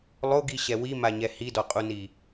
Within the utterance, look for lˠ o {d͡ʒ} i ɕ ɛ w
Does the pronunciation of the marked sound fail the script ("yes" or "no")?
yes